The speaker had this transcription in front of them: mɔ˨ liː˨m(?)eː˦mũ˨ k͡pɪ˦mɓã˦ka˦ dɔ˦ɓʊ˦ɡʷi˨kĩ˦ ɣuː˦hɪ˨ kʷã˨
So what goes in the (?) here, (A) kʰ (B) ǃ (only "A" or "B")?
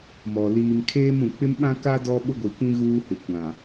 A